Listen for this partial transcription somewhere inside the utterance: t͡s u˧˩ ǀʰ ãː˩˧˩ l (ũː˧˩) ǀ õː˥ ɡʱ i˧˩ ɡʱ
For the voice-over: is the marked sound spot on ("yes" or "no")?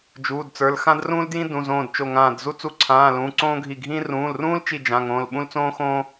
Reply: no